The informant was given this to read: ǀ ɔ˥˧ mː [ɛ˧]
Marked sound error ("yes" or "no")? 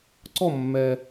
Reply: no